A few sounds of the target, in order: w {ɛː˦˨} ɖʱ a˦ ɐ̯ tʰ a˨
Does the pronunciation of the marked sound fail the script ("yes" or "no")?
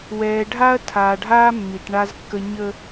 yes